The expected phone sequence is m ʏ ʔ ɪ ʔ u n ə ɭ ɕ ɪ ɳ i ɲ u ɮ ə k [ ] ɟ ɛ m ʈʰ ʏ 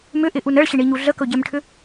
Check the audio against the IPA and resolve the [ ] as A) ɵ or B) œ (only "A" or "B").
A